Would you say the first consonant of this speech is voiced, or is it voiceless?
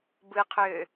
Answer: voiced